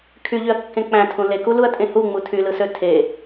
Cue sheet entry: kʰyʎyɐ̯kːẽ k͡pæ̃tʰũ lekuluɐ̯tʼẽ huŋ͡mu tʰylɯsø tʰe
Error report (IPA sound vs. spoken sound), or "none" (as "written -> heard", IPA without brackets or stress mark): none